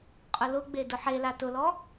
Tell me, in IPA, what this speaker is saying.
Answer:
qʼ ʊ l ʊ ɡ͡b e d ʊ ħ e l a t ʊ l ɔ

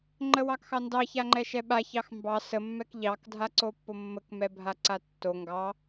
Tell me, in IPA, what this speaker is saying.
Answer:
ŋ͡ǃ ə w ɑ k x ɑ n d ɑ ç a ŋ͡ǃ ɛ ʃ ɛ ɓ a ç ɑ x m b ɑ s ə mː ɛ k ʎ ɑ k dʱ a ǀ o pː o mː ə k m ɛ bʱ a ǀ a tː o ŋ ɡ ɑ

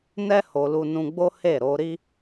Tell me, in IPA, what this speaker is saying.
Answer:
n ɛ˦ h o˧ l u˧ n ũ˧ ɡ͡b o˦ h e˦˨ ɾ o˨˦ ɾ i˦

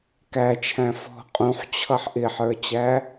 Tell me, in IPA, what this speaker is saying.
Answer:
k æ t͡ʃʰ æ̃ f ɔ̤ qʼ ũ ħ t͡ɕʰ ʌ ħ ʔ ɪ ħ ə˞ t͡ɕ æ

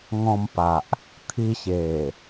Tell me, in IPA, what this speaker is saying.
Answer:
ŋ ɔ̃˧ m p a˨ ʔ | t̪ʰ i˧ ɕ e˨˩

